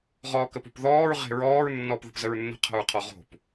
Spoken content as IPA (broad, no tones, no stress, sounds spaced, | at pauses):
ʁ ɔː k ə p o̤ p ð ɔː ɹ ʁ e̤ ɹ ɔː ɹ nː ɔː p ð ə̤ p z ə ɹ nː ə̤ qʰ ə̤ ɹ qʰ ɔ ʁ o̤ p